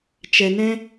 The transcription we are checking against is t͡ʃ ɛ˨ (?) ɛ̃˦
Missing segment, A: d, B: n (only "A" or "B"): B